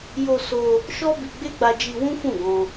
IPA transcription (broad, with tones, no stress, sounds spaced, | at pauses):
j o˧ s o˧ | ʃ ɔ˦ b i˧ ɡ͡b e˦ ɡ͡b a˧ d͡ʒ i˧ w ũ˦ f ũ˦˨ ɡ ɔ̃˧